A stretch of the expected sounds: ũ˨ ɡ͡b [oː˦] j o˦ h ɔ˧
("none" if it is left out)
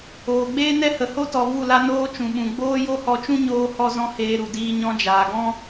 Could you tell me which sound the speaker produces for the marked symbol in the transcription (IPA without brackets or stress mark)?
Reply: oː˦